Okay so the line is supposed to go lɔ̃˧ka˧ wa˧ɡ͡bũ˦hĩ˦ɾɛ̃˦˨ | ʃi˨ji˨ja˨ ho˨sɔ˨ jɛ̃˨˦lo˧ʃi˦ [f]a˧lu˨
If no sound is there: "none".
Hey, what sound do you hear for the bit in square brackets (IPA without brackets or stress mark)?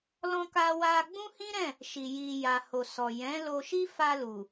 f